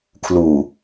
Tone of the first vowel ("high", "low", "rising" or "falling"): low